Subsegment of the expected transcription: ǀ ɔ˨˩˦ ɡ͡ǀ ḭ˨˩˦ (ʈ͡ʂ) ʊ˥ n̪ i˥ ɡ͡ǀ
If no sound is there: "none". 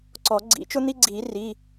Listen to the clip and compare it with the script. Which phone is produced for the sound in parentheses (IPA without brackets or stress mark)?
t͡ʃ